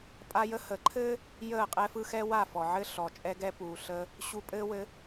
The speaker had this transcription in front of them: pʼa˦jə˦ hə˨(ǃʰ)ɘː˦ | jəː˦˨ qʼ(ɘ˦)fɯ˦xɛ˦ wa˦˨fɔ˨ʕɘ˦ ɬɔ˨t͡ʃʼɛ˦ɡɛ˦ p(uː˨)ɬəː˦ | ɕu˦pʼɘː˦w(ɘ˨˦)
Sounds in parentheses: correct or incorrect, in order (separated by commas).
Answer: correct, incorrect, correct, correct